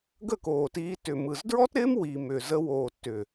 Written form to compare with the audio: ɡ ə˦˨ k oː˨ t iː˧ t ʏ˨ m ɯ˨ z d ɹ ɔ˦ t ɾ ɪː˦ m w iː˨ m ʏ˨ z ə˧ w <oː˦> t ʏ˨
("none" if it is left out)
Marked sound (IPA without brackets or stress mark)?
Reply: oː˨